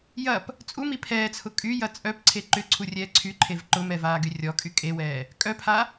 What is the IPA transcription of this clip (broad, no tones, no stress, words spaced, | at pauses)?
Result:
jɐp | t͡sʼumi pʰɛːt͡sʰʊ kʼyjɐ t͡sʼœpǀʰe ǃʏǀʰurʲɛː ǀʰyǃʰev ǃʊmɛvaːɡy rʲɔkʼy kʼewɛː | kʼœpʰa